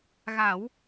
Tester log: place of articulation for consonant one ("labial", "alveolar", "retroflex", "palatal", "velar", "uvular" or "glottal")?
velar